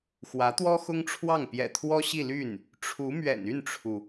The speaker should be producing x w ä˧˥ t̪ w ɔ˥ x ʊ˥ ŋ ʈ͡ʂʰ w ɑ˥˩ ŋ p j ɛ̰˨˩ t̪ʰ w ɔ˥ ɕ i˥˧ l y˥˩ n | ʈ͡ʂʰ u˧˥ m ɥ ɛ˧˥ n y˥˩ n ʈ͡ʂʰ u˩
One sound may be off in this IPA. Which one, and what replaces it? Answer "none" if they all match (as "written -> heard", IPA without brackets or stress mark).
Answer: ɛ˧˥ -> ɛ̰˨˩